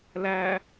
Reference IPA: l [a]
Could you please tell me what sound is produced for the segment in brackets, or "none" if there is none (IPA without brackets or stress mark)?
æ